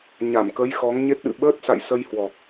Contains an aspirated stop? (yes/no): no